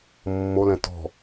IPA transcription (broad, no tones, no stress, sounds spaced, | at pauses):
mː o l ɛ̃ t ɔ̤